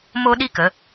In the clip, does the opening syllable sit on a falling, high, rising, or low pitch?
high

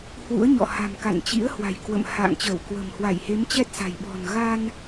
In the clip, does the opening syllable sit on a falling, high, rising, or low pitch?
rising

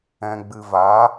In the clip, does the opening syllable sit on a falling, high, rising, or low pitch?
low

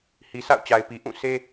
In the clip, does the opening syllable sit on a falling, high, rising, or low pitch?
low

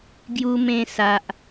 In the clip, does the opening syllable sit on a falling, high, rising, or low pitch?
high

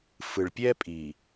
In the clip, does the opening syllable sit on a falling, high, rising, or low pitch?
low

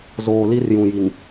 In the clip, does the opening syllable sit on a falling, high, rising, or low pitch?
low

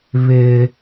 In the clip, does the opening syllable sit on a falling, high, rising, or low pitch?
low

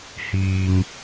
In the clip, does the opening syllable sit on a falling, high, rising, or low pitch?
low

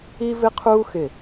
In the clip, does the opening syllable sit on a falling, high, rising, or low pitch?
high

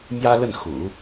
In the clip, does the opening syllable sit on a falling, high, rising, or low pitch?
high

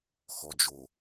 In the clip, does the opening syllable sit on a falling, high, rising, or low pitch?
low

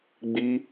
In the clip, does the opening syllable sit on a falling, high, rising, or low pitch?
high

